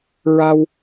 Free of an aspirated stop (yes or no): yes